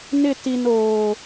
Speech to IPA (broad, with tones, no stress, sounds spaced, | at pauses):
n ɪ˦˨ t i˨ n oː˨